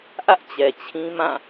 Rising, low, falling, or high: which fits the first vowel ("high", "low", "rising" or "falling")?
high